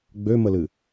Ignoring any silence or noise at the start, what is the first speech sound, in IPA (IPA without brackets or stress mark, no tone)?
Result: ɡ͡b